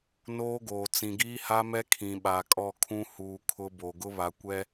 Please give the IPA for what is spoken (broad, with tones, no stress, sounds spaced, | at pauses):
n oː˦ ɡ oː˨ t͡s ĩ˨ ɡ iː˦ h a˦ m ɛ˦ kʰ ĩ˨ ɓ a˨ kʼ ɔ˦˨ kʰ ũ˦ h uː˨ kʰ ʊ˦ b o˨ ɡ ʊ˦ β a˨ kʷ ɛ˦